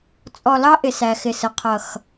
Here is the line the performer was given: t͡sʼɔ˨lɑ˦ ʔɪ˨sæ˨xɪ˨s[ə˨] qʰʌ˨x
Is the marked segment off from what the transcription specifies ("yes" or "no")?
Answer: no